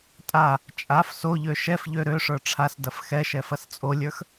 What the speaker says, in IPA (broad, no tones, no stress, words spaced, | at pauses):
tʼa | t͡ʃʼaf soʎø ʃɛfʎø ɾøʂə˞ ʈ͡ʂʰasdɐf xɛʃɛ fɐst͡sʼolʲə˞x